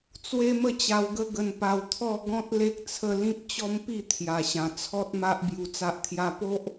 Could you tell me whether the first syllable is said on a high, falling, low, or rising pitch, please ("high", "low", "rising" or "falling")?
high